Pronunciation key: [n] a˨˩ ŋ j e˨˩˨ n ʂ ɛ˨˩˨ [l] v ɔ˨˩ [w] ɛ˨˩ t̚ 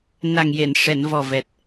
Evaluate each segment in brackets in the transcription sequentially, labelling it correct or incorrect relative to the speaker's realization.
correct, incorrect: n, incorrect: v

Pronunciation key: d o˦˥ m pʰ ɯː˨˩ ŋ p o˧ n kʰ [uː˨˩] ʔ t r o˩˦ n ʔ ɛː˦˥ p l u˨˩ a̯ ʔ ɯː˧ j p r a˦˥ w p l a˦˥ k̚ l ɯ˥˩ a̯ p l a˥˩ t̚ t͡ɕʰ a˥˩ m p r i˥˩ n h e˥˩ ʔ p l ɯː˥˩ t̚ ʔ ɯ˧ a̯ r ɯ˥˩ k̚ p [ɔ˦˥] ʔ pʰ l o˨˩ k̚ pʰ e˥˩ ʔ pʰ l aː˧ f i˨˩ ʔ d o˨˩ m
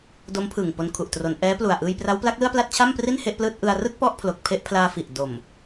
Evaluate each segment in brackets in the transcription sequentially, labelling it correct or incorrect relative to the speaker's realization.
incorrect: u˨˩, incorrect: ɔ˥˩

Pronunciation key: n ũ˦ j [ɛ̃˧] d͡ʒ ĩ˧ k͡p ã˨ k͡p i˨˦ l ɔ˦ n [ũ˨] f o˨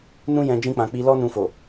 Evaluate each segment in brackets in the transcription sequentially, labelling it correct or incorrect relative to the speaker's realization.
correct, incorrect: ũ˧

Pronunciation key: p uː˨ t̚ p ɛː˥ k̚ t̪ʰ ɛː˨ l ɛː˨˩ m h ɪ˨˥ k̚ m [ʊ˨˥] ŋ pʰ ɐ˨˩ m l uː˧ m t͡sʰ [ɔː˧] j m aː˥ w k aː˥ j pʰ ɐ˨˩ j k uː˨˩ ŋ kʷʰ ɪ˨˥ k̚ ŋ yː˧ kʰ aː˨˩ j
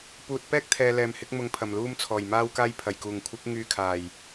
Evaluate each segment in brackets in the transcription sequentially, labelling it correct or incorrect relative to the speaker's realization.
correct, incorrect: ɔː˨˩

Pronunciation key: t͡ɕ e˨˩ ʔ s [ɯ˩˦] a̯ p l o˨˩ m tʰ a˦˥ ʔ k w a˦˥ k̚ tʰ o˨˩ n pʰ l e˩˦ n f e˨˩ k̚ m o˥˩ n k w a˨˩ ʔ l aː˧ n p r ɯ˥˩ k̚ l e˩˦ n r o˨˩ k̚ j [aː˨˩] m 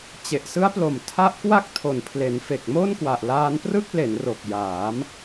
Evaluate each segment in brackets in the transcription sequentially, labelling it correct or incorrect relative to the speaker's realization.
incorrect: ɯ˦˥, incorrect: aː˩˦

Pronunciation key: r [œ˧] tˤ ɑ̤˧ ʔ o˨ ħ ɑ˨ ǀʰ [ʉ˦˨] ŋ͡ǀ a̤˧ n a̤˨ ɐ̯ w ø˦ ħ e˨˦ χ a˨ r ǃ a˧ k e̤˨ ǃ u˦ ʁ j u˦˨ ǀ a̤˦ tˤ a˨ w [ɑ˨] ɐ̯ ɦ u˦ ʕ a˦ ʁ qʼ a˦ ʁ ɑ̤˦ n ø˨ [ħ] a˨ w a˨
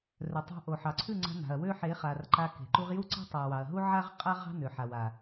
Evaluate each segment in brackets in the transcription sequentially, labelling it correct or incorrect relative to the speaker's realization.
incorrect: œ˨, correct, correct, correct

